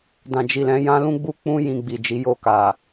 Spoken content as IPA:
d ã˨ d͡ʒ i˨ l ɛ̃˨˦ j ã˦ l ũ˦ ɡ͡b u˦ k͡p ũ˦ j ĩ˧ ɡ͡b i˨ d͡ʒ i˨˦ j o˧ k a˨

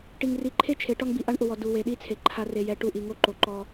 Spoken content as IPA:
ʈ i˨ ŋ r i˨ ǃʰ e˦ t͡ʃʰ e˨˦ ʈ ɔ˦ ŋ b i˨ ʔ a˦ ɳ ʔ ʊ˨ w ɔ˨ d u˨ w e˨ ɗ i˦˨ t͡sʰ e˨ ǃʰ a˨ r e˨ j ɛ˨ ʈ u˦˨ ʔ i˨ ŋ o˦ ǃ o˨ ǃ ɔ˦

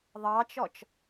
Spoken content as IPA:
ðˤ ɑ t͡ʃ ɔ t͡ʃ

